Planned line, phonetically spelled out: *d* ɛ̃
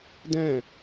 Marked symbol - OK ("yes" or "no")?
yes